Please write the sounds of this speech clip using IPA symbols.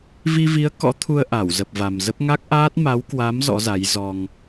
vi˧vi˨˦ə̯ kɔ̰˧˥t̪ʰu˧ə̯ ʔa˧˩w zə˨˩p̚va˨˩mzə˦˥p̚ ŋa˦˥k̚ʔaː˦˥t̚ ma˨˦wkwa˨˦m zɔ̰˧˥za˨˦jzɔ˧ŋ

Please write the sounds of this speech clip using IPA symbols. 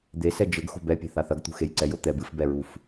d̪esɛ d͡ʒɘɡ xo̤bɛpʲe̤ θaθɐɡt̪ṳ xejǀɛj ot̪ɛb ɨfbɛɹuf

